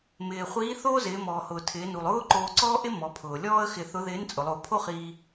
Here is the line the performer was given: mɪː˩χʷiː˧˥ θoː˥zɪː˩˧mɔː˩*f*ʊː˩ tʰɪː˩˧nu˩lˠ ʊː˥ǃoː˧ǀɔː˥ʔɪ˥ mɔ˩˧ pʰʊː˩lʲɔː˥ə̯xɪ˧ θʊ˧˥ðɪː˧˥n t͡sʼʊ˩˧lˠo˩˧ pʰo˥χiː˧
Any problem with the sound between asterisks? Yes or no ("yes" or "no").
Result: yes